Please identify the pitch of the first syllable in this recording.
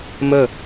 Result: falling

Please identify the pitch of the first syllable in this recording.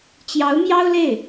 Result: rising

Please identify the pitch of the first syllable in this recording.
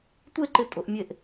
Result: falling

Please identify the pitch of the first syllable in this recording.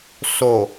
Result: low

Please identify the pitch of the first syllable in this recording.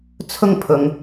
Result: high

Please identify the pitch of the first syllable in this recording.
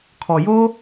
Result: low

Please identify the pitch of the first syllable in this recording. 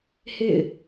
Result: falling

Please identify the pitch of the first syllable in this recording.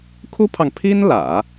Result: high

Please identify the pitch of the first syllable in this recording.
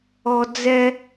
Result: high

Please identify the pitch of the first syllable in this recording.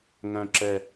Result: low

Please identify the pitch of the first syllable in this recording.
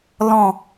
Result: low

